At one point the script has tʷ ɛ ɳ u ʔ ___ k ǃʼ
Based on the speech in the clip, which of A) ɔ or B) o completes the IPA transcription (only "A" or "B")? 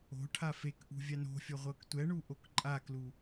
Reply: B